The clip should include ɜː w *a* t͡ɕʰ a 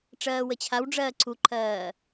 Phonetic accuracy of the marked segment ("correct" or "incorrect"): incorrect